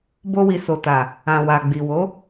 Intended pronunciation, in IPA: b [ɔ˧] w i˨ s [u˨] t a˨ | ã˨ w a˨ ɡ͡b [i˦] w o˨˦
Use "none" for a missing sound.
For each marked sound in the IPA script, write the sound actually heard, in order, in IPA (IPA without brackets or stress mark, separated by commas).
o˧, o˨, i˨